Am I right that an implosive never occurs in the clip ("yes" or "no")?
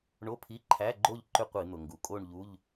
yes